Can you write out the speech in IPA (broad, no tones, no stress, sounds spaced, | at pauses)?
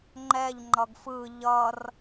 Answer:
ŋ͡ǃ ɛ ʎ ŋ͡ǃ ʌ ɡ f ɯ ʎ ʌ r